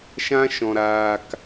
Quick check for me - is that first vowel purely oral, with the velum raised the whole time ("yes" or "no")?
no